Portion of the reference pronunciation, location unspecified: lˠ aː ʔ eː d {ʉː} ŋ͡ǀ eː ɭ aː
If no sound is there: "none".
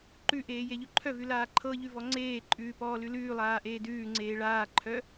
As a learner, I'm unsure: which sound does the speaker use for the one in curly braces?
ʉː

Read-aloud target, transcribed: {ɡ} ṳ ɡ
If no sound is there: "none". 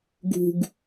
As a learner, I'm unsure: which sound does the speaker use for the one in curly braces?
ɡ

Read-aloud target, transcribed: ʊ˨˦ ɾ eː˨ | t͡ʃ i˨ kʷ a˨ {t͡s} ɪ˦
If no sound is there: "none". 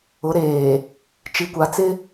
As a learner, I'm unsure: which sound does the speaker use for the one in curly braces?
t͡s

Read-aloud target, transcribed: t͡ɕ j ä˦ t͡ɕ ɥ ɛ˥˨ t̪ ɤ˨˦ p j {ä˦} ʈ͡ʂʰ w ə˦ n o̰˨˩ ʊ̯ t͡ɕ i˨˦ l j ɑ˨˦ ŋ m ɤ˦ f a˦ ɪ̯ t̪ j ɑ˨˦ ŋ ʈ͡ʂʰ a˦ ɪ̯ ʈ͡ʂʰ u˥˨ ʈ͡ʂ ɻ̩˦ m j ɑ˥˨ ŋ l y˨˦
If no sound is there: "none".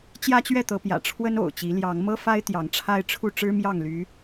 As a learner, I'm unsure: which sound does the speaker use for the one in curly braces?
ä̰˨˩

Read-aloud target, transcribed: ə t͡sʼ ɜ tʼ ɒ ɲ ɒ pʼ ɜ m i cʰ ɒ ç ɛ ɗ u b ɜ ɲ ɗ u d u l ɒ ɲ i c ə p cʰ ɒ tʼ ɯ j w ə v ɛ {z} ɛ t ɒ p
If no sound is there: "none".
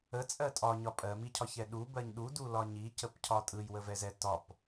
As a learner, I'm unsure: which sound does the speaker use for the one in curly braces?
z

